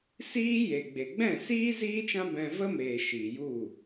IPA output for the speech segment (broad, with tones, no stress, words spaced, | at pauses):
siː˦je˨ɡ͡be˨ ɡ͡bɛ̃˦˨siː˦ ziː˦t͡ʃã˦ bɛ̃˧və˦meː˨ ʃiː˨ju˦˨